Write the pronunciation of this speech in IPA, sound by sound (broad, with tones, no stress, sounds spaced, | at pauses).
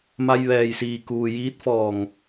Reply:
m a˧ j ʋ ɛː˩ j s iː˩ k uː˩ j iː˧˥ t̚ f ɔː˧˩ ŋ